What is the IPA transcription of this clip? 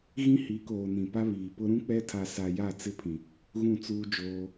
ɣĩ˦hi˨˦koː˨ nĩ˨pa˦ βiː˨pʊ˦ ɾũ˦k͡pɛ˦tʰa˨sa˨ ja˦˨t͡sɪ˦pʰĩ˨ | ɣũ˦˨t͡suː˦d͡ʒoː˦

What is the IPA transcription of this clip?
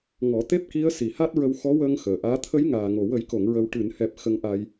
ŋɔ˨˩˦t̪e˦˥p̚ki˧˥ə̯ si˨˩ha˦˥t̚ɹə˧wxɔ˧˥ wəː˧ŋ xəː˨˩ʔaː˧˥ t̪ʰə˧˥jŋaː˨˩ŋo˨˩ wə˨˩˦jko˨˩˨ŋɹə˨˩w ʈɨ˨˩˨nhɛ˨˩p̚ xə˧˥ŋʔa˧j

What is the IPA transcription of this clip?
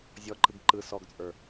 zʲɔǃɯɡ ǃɯ sɔɡt͡sʼə˞

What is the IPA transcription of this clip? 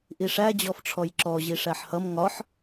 ʔiʂæ d͡ʑɔfʈ͡ʂʰɔjǁɔ ʑiʂæħhʌm ŋɒħ

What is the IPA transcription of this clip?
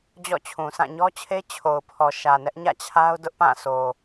d͡ʑɔ̰˦˨t͡ɕʰũ˨sʰã˦˨ ɲɔ˦t͡ɕʰe˦ t͡ɕʰo˨ʊ̯pʰɔ˨ ʃä˨nɛ˦ʔ ɲä̰˦˨t͡ɕʰa˦ʊ̯ dʊ˦ʔpã˦˨ so˨

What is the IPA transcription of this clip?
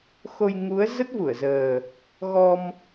xo˧j ŋu˨˦ə̯ zə˦˥t̚vu˧˩ə̯zəː˨˩ | ɣɔ˧m

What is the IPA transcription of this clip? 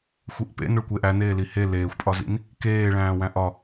xʷiʔpḛ noɭkʷeʔæ neːlihe leːxʷpʼɒzḭn | keːɭæ̃ː wæ̃ʔɒ

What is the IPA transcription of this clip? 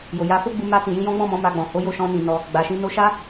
jo˨ja˨˦ fo˦ɡ͡bu˧ ma˧ tĩ˨jĩ˧jɔ̃˦ ɡ͡bɔ̃˦˨mɔ̃˨˦ ma˧ɡ͡bɔ̃˨ ho˨˦jo˦˨ʃɔ̃˧nĩ˨ nɔ˧ | ɡ͡ba˨ʃĩ˧ no˧ʃa˦

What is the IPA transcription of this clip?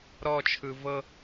ɾɔt͡ʃʰɯ vɤ

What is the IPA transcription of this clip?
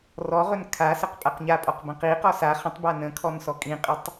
rɔʁɵn kʰasəq pʼaqɲapʼɔqbə̃ qiqɔ sa χə̃tˤba nə̃kʰɔnsɔ kʼĩqʼətˤ

